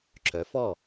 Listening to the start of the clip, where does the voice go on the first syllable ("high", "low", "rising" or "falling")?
rising